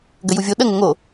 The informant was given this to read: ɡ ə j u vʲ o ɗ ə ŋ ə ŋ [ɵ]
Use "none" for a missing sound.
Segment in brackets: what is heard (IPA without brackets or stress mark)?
o